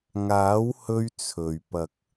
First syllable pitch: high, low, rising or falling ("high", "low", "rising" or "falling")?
rising